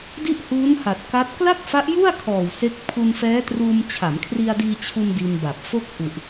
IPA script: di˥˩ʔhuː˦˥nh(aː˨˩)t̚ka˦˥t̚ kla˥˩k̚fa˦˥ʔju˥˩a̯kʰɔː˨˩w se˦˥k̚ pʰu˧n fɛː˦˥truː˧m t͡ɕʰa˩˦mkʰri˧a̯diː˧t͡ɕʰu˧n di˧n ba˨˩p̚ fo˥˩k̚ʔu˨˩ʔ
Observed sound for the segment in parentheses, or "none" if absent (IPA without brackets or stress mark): a˨˩